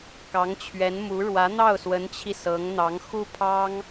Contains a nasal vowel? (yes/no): no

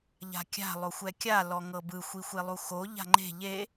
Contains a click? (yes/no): yes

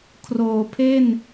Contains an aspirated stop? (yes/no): yes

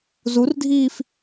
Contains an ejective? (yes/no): no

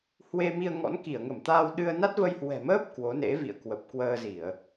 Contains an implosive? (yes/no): yes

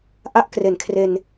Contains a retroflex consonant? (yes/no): no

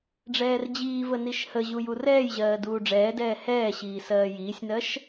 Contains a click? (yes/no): no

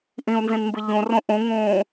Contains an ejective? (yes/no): no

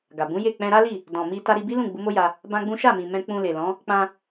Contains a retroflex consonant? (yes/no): no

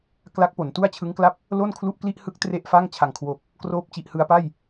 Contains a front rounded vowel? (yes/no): no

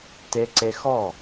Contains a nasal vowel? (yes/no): no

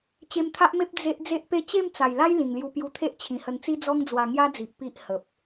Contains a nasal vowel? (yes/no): yes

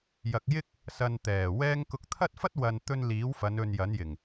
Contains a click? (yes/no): no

